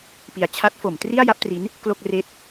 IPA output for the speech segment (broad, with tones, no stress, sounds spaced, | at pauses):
p i˩˦ a̯ t͡ɕʰ a˦˥ t̚ f o˩˦ m t r i˥˩ a̯ j a˦˥ p̚ t r i˦˥ n | k l o˥˩ k̚ r eː˥˩ t̚